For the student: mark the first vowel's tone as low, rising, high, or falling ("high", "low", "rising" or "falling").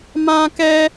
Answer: high